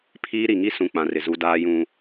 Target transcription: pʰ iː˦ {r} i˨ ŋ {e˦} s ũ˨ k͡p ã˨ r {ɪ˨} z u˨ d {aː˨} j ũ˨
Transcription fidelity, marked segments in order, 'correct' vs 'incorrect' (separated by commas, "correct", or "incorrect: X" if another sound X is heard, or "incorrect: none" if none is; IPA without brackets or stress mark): incorrect: ɾ, incorrect: i˦, correct, correct